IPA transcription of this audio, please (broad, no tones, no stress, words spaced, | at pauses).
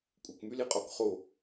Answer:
kʷʼɪkmyliqʼɔk χo